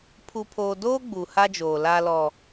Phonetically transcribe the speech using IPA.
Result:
pʰu˨pʰoː˨ doː˦ ɡ͡bu˨ha˦d͡ʒoː˨ la˦lɔ˦

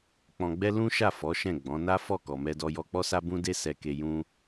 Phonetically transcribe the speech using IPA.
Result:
k͡pɔ̃˧ɡ͡bɛ˦ lũ˦ʃa˦˨ fɔ˨˦ʃɛ̃˦˨ ɡ͡bɔ̃˨˦na˦fɔ˦˨ kɔ˨mɛ˧dɔ˧ jɔ˧k͡pɔ˦sa˦ bũ˦ de˦sɛ˧ke˧ jũ˦

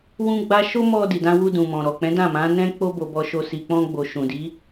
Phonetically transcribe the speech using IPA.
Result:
wũ˦ɡ͡ba˦ ʃo˦mɔ˧ di˨dã˧wu˧ dũ˨mɔ̃˨ ɾɔ˨k͡pɛ̃˨˦ dã˦˨mã˨˦nɛ̃˦ k͡po˦bo˧bɔ˧ʃo˧ si˨k͡pɔ̃˧ɡ͡bo˨ ʃũ˨di˨˦

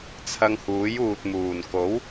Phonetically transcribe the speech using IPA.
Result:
t͡sʰɐ˧ŋhuː˨˥juː˨t̚muː˨˩n ko˨˥w

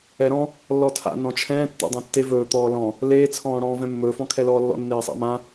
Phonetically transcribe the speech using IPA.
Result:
ɛɾɔ̃ | lːɔtʰa̰ nɔ̃t͡ʃʰɛ̃ː tːḛdˤɛ̃tːe vɵː t̪ɔːlɔ̃ | leː t͡sʰɔ̃ːɽɔ̃ːvɛ̃mːɵː fɔ̃kʰɛlɔːlːɔ̰ nːeːsˤa̰mã

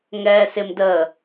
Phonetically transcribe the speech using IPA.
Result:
ŋɛːsɪmdəː

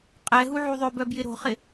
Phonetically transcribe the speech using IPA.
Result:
qʼɛɦu ʕuðˤøbœ bjɪɾo̤χɪ

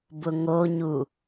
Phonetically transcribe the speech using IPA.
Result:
bʊŋoɲu

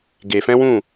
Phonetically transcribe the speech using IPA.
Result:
ɡe˨fɛ̃˦wũ˦˨

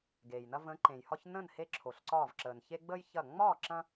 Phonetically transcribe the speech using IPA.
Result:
ɡeː˩jnɐ˦ və̃˨˦ǃẽ˩jhɒ˦ç nə̃˥˨nhe˦ ǁʰo˩ɬǀɒː˧˩vǁəː˩n çe˦ɡ͡bəː˦j çɐ˧˩ ŋ͡mɒː˥˨ǁɐ̃˦

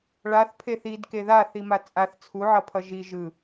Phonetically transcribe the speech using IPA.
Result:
ɭaθpʰe θidke ðaθima t͡sʼaθ t͡sʰuʕʌpʰʌ ʒi ʒɯ

